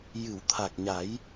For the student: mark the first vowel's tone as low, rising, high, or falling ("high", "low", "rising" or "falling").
low